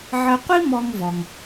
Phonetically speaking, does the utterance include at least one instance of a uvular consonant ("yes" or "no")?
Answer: yes